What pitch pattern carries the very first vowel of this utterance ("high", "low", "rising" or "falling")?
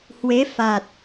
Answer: rising